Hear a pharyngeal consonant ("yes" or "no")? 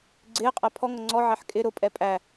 yes